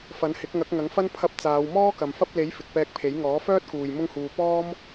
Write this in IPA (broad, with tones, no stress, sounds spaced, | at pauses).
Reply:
f ɐ˨˥ n h ɪ˨˥ k̚ ŋ ɐ˨˥ k̚ ŋ ɐ˨˥ ŋ f ɐ˥ n pʰ ɐ˧ p̚ t͡s aː˨˧ w m ɔː˥ k ɐ˨ m f ɐ˥ p̚ l e˨˥ j f ɪ˨ k̚ p ɛː˧ k̚ pʰ e˨˥ j ŋ ɔː˨˥ f œː˥ t̚ k uː˨ j m ʊ˥ ŋ h uː˧ p ɔː˥ m